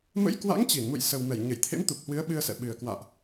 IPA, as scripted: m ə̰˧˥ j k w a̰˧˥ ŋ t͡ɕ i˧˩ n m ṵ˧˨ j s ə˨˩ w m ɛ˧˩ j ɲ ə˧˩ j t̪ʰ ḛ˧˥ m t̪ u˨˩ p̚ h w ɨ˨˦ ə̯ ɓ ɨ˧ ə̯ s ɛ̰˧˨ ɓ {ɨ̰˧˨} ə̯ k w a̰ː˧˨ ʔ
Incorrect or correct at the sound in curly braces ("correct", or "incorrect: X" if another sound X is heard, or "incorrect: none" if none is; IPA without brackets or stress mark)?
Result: incorrect: ɨ˨˩